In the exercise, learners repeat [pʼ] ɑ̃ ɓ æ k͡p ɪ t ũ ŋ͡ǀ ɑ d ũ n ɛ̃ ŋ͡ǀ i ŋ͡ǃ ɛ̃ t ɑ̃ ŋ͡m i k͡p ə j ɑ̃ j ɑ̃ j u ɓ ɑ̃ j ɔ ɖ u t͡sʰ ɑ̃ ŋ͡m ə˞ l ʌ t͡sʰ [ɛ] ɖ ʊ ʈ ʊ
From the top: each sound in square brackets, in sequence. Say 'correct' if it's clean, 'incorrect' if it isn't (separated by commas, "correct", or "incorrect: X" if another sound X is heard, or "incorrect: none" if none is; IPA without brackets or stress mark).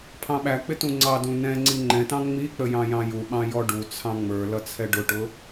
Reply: incorrect: pʰ, correct